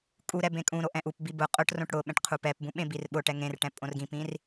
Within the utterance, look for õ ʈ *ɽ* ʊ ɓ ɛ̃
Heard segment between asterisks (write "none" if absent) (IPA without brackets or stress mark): ɽ